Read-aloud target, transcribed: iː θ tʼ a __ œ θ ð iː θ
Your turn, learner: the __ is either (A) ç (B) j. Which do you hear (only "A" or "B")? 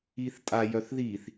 B